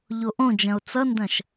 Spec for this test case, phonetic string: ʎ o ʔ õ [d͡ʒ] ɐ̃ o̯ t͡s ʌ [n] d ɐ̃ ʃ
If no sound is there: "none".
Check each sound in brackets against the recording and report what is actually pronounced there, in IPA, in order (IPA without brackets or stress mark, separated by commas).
d͡ʒ, n